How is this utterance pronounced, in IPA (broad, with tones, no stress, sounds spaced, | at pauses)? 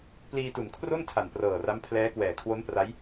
p l iː˧ t u˩˦ n kʰ r o˥˩ n tʰ a˨˩ n p r ɤː˨˩ r a˦˥ m pʰ l ɛː˦˥ k w ɛː˨˩ kʰ w o˦˥ n p r a˦˥ j